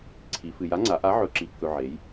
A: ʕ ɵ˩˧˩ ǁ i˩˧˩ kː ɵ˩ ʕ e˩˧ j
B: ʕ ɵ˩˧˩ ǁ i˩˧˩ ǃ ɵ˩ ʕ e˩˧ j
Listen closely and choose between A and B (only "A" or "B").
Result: A